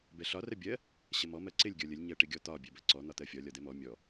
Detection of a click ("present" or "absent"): present